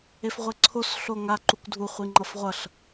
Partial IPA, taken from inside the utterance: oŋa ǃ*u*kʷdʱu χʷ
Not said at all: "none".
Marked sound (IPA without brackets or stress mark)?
u